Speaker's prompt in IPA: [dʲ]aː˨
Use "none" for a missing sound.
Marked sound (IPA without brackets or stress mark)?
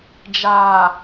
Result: d͡ʒ